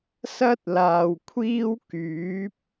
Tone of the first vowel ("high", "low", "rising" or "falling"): high